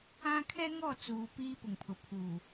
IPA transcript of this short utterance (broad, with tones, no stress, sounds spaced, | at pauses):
ã˦ kʰ ɛ˦ ŋ ɔ˦˨ t͡s uː˨ p iː˦ p ʊ˨ ŋ pʰ ʊ˨ pʰ uː˨